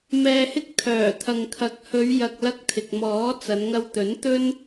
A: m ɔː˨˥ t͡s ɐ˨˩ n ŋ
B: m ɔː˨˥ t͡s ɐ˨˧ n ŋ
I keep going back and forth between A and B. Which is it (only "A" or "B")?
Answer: B